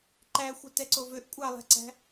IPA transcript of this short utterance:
ǃ æ xʷ œ t ɛ ǀ o v ø ʔ kʷʼ ɑ lˠ æ̤ ǀ æ̤

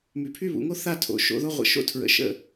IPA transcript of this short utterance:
m y˩˧ pʰ y˥˧ β ṵ˩˧ ŋ o˥ θ a˥˧ tʰ o̰˩˧ ʃ o̰˧ ð o˥˧ ʁʷ ə̰˧˩ ʃ o̰˥˧ tʰ ɹ ə̰˩˧ ʃ ə̰˥˧

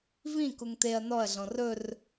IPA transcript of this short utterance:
v ĩ k u ŋ t̪ e ɐ̯ n ɔ ɐ̯ ɮ ɔ̃ r ɵ r

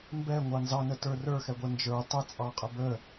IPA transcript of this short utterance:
m b ɛ ŋʷ ɑ n z ɑ n ə t ə˞ r ə˞ x ɛ ɡʷ ɛ n d͡ʒ ə˞ tˤ ə t͡sʼ ɑ qʼ ə b ə

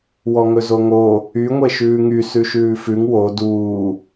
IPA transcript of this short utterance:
w ɔ ŋ ɵ z o ŋ o | y ŋʷ e ʃ ʉː ŋ y s ʉ ʃ ʉː f ʉ ŋ w o d uː

